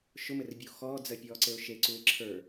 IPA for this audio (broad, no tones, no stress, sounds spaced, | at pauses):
ʃ ʊ m ɘ r bʲ u x ɔː d͡z ɜ pʲ ɔː ǀ ɘ ʊ̯ ʃ e ǀ u ɪ̯ ǁʰ ə˞